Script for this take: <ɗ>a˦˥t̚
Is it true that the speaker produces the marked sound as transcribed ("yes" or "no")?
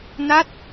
no